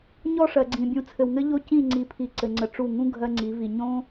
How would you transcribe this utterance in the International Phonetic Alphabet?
ɲ ɔ˦˨ ʂ ɜ˨ ɡ͡ǀ ĩ˨ bʲ ũ˨ t͡sʰ ɘ˨ w ŋ ɘ˦ ʎ o˦ c ĩ˦˨ ŋ͡ǀ i˨˦ pʰ i˨ ǀ ɘ˨ ŋ͡ǀ ə˨ ʈ͡ʂ u˦˨ ŋ ũ˦ ɡʱ ɜ˦ ŋ͡ǀ i˨˦ v i˨ ɲ õ˦

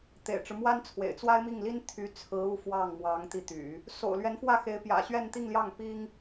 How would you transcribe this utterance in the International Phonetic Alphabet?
t̪ ḛ˨˩ ɪ̯ ʈ͡ʂ ɻ̩˦ m w a˥ n t͡sʰ w ḛ˨˩ ɪ̯ t͡s w a˥ ɪ̯ m i˥˩ ŋ l i˥ n t̪ʰ y˧˥ t͡sʰ ɹ̩˧˥ u˧˥ f w ɑ˥˩ ŋ m w ɑ˧˥ ŋ t̪ i˧ t̪ y̰˨˩˦ | s o̰˨˩ ʊ̯ l ɥ ɛ˧˥ n f w ä˥˩ x e˧˥ ɪ̯ p j ä̰˨˩ ɕ ɥ ɛ˥˧ n t̪ i˥˧ ŋ l j ɑ˥˩ ŋ p i˥ ŋ

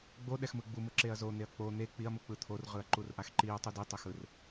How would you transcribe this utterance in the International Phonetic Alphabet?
ɡ͡b o ɗ ɛ x m ɯ ɡ͡b u m ɯ ǁ e ɐ̯ z o n̪ e ɐ̯ k͡p o n̪ e k͡p i ɐ̯ m u k͡p ɯ t̪ʰ o r ʁ ɯ ɐ̯ ǃ u r ʔ a x ǃ i ɐ̯ tˤ u d i tˤ ɛ x ɯ r

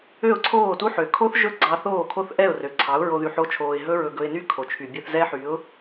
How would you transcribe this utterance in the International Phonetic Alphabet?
ø˦˨ ʊ̯ ǀʰ oː˦˨ t u˦ ħ ø˨ kʰ o˦ θ ʒ ɵ˦ ɡ͡ǀ ɑ˧ θ oː˦˨ kʰ o˦ θ ʔ ɛ˦˨ ʊ̯ r ø˨ ǀʰ ɑ˨˦ ʊ̯ ɹ o˧ ð y˧ ħ o˦ t͡ʃʰ oː˧ ɪ̯ ɦ ɵ˦ ɹ ɵ˧ ɡ ɵ˧ ɪ̯ n y˦ kʰ o˨ t͡ʃʰ y˨ bʲ œ˧ θ z ɛ˦ ħ y˨˦ ʊ̯

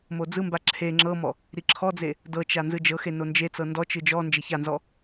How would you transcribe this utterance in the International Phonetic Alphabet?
m o d͡z ɯ m b a ǁʰ e ŋ͡ǁ ɤ m ɔ | ɾ i ǁʰ ɔ d͡z e | d ɤ t͡ʃ a n z ɯ d͡ʒ ɤ x e n o n d͡ʒ e t͡s ɤ n d ɔ t͡ʃ ɯ d͡ʒ ɔ n d͡ʒ e ç a n z ɔ

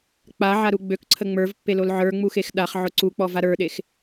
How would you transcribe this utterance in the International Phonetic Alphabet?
k͡p a ʕ a ɾ u ɡ͡b ø k ǀʰ ə ŋ͡m ə˞ v pː e l o l ʕ ə˞ ŋ͡m u x e x ɗ a χ ʕ ʊ ǀ u k͡p ɔ v a ɾ ə˞ ɗ e x

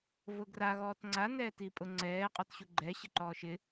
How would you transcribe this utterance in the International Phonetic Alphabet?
v ʊ ɡ r a ɣ ɔː t ŋ͡ǀ a n ɛː t i pʼ ʊ ŋ͡ǀ ɛː qʼ ɔ t ɕ u ɡ͡ǃ ɛ ɕ ɪ ǃ ɔː ʃ ɪ

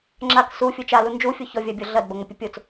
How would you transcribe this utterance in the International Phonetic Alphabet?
ŋ͡ǁ a k s u fʲ u t͡ʃ a l u n d͡ʒ u fʲ o ç ɔ vʲ a bʲ ɔ ɮ ɐ d b ɐ ŋ ə pʲ ə pʲ o t͡s

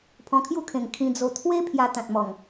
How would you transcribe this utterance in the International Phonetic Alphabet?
pʰ ɔ̃˧ kʰ j u˥˧ kʰ ẽ˨˩ ŋ kʰ ĩ˧ d͡z o˧ t̪ʰ w e˦ pʰ j a˧ t̪ ã˨ t̚ m ɔ˨˩ ŋ

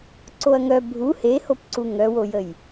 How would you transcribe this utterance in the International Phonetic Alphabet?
ǀ o ɐ̯ ŋ œ bʱ u h e h o p ǀ u ŋ œ w o j ə j

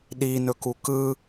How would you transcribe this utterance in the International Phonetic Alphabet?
ɗ i n ɵ k u k ɯ

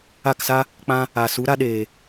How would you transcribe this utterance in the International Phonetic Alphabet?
a˦˨ k s a˦ | k͡p ã˦ | aː˨ s u˨˦ ɾ a˦ ɗ eː˨

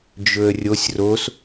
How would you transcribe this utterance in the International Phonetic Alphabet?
d͡ʒ ɵ ə̯ rʲ o sʲ r o s

